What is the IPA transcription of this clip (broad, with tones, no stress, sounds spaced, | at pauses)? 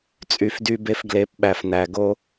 t͡sʼ y˧ f d y˦ b e˦ f ɡ l e˨˦ p ɓ æ˨ f n æ˨ ɡ o˧